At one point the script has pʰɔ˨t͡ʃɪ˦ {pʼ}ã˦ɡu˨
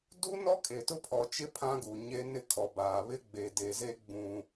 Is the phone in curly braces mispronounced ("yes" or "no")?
yes